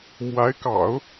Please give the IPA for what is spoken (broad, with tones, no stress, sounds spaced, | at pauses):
m w a˧˥ ɪ̯ k ɑ̰˨˩˦ ʊ̯